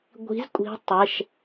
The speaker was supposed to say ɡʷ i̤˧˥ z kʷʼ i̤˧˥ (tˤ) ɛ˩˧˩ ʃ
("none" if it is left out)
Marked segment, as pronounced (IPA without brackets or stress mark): tˤ